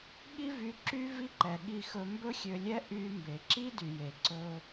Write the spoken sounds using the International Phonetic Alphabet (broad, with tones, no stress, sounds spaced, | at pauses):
ɠ i˥ v y˧ ǁ y˥ v i˥ ǃ ɛ˩ ɠ i˧ x ɵ˧ m b ɵ˥ xʲ ø˧ lʲ ɛ˥ ʔ y˧ m b e˩ ǁ i˥ d y˩ j e˩ ǀ ɵ˧